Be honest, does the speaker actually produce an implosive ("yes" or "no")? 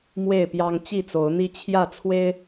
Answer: no